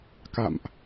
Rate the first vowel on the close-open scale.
open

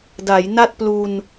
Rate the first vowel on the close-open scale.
open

